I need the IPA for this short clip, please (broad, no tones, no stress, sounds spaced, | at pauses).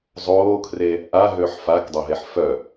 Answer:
zˤ oː kʰ r e | ʔ a ɦ ø ħ f a k dˤ ø ɦ e ħ f œ